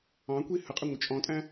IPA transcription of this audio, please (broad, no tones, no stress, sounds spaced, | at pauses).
ɑ̃ kʷ i h ə qʼ ɪ ŋʷ ə t͡ʃʼ ɔ̃ tʼ æ̃